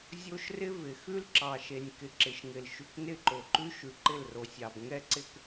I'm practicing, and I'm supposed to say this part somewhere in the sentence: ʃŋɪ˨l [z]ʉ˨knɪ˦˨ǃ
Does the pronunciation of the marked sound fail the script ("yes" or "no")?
yes